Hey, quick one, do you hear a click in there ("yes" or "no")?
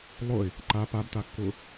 yes